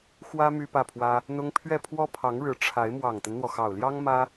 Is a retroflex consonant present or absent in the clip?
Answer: present